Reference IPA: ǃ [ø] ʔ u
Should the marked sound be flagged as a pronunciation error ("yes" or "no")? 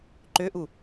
no